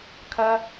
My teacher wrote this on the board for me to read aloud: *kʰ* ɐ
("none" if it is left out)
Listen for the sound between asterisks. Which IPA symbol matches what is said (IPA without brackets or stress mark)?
kʰ